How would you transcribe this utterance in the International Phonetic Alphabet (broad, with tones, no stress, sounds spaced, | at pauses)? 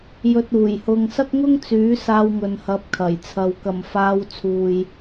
j ɵ˧ t̚ uː˨˩ j h ʊ˧ ŋ s ɐ˥ k̚ ŋ ʊ˥ ŋ t͡s yː˨˥ s aː˧ w ŋ ɵ˨ n h ɐ˨˥ p̚ kʰ ɐ˨˩ j t͡sʰ ɐ˨ w k ɐ˨˩ m f aː˨˧ w t͡sʰ uː˨ j